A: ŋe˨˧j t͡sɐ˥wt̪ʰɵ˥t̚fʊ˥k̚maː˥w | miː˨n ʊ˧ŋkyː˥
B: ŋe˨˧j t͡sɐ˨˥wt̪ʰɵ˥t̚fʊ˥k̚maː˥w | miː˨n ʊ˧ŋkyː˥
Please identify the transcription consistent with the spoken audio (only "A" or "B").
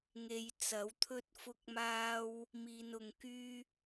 B